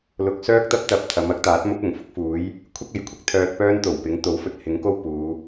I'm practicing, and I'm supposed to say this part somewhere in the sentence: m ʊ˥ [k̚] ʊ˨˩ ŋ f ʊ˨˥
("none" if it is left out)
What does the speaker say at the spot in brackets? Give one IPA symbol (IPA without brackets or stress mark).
k̚